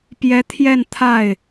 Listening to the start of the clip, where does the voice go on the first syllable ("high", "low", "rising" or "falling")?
rising